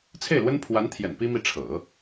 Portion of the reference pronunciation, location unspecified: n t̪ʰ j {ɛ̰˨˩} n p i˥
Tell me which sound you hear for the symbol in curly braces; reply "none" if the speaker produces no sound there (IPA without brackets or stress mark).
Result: ɛ̰˨˩